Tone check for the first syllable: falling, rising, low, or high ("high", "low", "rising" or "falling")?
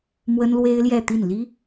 high